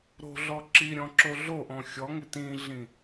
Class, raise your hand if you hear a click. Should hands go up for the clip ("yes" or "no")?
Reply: yes